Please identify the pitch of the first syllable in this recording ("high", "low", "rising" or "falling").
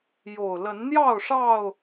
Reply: low